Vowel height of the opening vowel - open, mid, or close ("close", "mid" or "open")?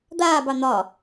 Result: open